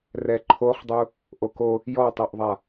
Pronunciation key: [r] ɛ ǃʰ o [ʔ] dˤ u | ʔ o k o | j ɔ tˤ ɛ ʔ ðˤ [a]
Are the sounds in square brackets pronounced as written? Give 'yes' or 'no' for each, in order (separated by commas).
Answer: yes, no, yes